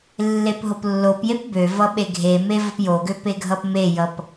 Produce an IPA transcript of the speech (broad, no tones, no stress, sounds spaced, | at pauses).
lː e p ɦ o p lː o p j e p b ø v ʌ ɓ e ɡʱ e m e v ʌ p j o ɡ ø p e ɡʱ ʌ p m e j ʌ p